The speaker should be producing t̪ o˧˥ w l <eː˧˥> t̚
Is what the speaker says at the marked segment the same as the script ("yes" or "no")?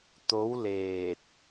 no